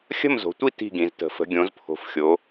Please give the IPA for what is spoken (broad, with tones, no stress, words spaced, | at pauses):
xʲə̤˥˨mzo̤˩˧tʷi˥˨ ti̤˥˨ɡĩ˩˧ztə̤˩˧ fə̤˩˧ɡʲõ˩˧zpʰo̤˩˧fxʲo˩˧